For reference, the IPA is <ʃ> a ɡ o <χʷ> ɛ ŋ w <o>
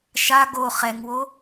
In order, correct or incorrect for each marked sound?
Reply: correct, incorrect, correct

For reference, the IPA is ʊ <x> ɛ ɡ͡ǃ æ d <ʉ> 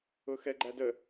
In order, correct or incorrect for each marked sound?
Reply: correct, incorrect

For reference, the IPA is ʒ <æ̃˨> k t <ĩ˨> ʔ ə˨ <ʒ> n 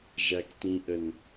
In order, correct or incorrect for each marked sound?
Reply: incorrect, correct, incorrect

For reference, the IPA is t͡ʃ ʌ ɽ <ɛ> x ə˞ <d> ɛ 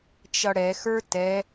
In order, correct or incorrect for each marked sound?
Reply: correct, incorrect

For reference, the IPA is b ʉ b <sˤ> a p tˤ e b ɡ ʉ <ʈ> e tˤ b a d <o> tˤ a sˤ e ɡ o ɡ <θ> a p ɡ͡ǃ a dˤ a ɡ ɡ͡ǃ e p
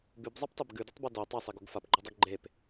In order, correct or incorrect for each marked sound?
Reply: incorrect, incorrect, correct, incorrect

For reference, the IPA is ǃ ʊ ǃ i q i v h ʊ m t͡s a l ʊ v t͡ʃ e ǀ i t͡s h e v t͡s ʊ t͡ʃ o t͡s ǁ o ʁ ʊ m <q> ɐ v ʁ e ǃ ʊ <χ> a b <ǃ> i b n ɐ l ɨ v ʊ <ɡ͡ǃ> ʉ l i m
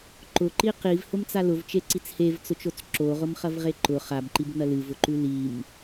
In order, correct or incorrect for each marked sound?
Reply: incorrect, correct, correct, incorrect

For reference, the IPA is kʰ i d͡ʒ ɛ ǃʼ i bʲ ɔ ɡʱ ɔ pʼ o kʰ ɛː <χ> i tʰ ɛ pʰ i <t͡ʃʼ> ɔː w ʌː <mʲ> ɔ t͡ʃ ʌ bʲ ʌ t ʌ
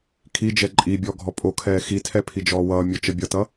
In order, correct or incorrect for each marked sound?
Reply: incorrect, incorrect, correct

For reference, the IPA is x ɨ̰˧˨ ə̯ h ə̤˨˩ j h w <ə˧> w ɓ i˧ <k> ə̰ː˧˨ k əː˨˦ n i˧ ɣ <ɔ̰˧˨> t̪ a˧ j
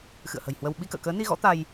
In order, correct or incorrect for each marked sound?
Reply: correct, correct, incorrect

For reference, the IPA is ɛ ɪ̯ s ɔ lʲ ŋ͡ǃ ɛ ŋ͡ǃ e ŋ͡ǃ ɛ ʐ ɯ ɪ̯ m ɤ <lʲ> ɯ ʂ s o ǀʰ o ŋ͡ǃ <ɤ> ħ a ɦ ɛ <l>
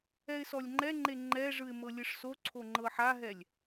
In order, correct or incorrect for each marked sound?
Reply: correct, correct, incorrect

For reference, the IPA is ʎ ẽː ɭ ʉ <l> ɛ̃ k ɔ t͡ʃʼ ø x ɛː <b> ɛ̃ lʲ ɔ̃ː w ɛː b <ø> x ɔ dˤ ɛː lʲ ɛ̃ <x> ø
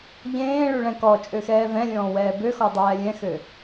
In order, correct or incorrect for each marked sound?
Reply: incorrect, incorrect, correct, correct

